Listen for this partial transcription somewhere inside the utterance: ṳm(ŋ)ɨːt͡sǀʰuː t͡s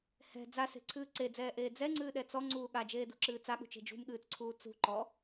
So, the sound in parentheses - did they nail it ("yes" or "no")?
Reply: no